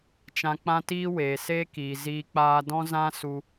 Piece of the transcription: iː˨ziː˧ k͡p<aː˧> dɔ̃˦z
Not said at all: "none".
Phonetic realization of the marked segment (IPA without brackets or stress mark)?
aː˧